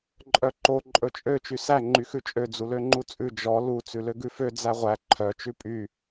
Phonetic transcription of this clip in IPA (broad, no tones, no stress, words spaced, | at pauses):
ǃʼœǃo ǃʼɵt͡ʃʼø t͡ʃysæ ŋ͡ǃyxʉt͡ʃʼø d͡zuløŋ͡ǃut͡sʼʉ d͡ʒɔ lu t͡sʉløɡʉfø d͡zæʁʷæ ǃʰœ t͡ʃʉpʼy